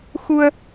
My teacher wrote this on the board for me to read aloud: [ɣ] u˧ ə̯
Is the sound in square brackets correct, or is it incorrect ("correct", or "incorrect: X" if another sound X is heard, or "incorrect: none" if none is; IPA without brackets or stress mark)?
incorrect: x